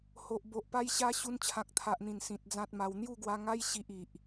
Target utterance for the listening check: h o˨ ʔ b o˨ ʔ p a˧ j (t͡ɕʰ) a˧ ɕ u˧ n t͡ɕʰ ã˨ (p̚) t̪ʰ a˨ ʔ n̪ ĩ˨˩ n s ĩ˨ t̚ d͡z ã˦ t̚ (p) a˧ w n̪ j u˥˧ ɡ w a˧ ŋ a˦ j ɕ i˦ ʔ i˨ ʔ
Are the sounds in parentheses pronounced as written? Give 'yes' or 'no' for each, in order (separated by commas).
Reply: no, no, no